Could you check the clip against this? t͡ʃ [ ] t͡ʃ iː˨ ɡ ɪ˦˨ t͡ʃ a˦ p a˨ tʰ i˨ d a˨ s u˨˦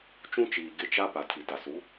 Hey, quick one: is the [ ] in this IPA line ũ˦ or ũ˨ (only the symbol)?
ũ˦